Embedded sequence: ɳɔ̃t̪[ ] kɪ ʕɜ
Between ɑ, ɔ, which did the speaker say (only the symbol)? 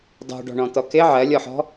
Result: ɔ